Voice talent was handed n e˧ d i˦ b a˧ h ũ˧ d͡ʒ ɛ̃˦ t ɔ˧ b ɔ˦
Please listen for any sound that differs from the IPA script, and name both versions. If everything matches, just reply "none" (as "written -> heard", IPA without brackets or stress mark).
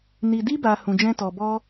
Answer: e˧ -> i˧